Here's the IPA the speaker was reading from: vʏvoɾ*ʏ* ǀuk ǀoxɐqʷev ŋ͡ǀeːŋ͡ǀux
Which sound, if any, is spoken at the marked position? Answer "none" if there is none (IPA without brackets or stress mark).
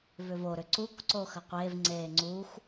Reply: ʏ